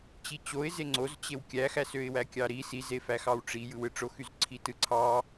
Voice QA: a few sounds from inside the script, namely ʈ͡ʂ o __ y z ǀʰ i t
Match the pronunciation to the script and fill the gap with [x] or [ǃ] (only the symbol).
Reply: x